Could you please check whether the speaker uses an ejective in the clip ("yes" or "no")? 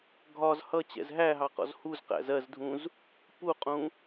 yes